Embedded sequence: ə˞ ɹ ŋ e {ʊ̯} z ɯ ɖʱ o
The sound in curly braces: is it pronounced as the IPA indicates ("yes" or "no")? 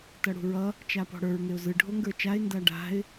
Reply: yes